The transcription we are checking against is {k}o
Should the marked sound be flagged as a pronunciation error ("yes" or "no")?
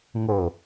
yes